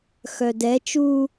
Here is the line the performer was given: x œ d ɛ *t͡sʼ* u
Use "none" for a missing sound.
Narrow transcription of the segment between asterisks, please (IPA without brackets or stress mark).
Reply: t͡ʃ